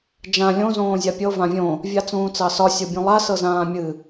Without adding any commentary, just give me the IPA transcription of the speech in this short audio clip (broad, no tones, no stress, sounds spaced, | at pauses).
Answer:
d͡ʒ ã lʲ õ z õː zʲ a pʲ ɤ v ã vʲ õ | vʲ a t͡s ũː t͡s ɑ s ɒ sʲ ɤ bʲ ũ lˠ a s ɤ z ãː mʲ ɨ